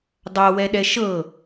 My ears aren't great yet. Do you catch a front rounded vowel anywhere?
no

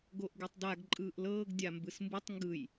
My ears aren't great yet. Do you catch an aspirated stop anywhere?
no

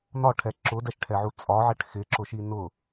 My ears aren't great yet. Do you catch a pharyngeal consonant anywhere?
yes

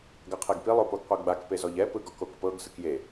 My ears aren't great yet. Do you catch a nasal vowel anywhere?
no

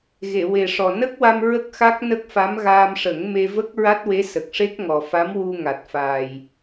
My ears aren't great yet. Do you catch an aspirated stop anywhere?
no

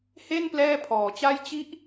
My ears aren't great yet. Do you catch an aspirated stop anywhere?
yes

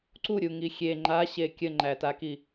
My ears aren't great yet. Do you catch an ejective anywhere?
no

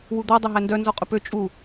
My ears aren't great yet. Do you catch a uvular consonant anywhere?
yes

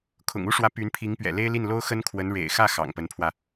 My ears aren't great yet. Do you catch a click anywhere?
no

